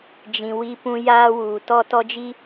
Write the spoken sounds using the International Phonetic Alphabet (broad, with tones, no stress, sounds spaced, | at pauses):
d͡ʒ ĩ˨ w i˦ p ũ˦ j aː˦ w uː˨ t ɔ˦ t ɔ˦ d͡ʒ i˦